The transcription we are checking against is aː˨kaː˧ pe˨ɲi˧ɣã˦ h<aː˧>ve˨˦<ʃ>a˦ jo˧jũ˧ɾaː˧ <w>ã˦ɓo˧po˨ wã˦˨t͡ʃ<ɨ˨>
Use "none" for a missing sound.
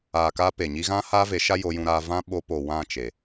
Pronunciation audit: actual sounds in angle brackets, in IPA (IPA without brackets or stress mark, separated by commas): aː˦, ʃ, v, e˨